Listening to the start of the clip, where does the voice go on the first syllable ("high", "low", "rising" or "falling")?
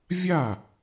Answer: falling